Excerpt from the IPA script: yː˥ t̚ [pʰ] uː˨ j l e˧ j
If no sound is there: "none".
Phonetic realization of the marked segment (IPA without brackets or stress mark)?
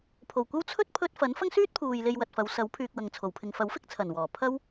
pʰ